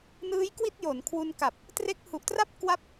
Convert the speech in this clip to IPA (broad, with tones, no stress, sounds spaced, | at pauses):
n ɯː˦˥ j k w i˥˩ t̚ j o˩˦ n kʰ w u˧ n k a˨˩ p̚ | t r e˦˥ k̚ h u˨˩ ʔ t r a˥˩ p̚ k w a˦˥ p̚